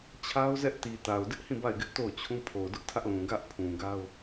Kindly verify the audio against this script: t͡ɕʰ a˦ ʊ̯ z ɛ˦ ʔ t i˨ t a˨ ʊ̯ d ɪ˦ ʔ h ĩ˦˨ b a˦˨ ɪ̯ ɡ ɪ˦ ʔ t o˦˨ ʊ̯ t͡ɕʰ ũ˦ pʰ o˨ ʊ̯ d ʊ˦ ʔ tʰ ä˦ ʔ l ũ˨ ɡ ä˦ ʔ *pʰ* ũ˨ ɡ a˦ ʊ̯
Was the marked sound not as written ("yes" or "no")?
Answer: no